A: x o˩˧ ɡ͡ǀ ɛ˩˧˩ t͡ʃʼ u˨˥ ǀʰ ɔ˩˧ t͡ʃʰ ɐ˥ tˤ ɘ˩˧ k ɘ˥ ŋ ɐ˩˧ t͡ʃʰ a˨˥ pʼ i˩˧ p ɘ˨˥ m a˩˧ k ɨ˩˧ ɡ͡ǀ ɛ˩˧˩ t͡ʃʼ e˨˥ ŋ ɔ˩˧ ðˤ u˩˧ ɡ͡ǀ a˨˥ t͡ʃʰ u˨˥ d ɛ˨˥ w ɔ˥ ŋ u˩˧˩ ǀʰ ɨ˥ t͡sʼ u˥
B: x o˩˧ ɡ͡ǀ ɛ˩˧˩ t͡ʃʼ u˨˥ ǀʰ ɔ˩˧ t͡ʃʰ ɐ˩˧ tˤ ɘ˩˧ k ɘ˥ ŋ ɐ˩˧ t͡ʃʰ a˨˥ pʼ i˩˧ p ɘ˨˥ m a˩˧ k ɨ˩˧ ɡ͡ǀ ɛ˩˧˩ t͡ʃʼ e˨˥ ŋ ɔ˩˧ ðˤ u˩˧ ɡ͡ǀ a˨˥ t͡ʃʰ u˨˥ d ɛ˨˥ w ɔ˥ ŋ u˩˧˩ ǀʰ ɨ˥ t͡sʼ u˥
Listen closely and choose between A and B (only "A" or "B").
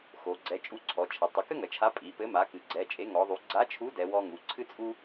B